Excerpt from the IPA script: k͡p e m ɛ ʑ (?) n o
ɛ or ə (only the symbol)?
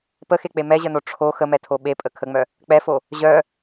ə